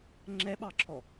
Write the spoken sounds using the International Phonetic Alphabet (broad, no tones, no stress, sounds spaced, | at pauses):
ŋ͡ǁ ɛ ɓ ɑ ǁʰ ɔ